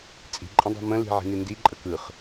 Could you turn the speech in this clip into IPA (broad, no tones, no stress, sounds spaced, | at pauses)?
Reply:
t͡sʼ i̤ ǃʼ ə̃ dˤ a̤ m ə̃ l i̤ ʕ i̤ n i n d i ǃʼ ə k ɯ χ